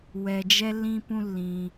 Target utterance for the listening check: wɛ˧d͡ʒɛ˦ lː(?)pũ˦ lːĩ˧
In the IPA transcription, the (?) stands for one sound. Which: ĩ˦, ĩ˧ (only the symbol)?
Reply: ĩ˦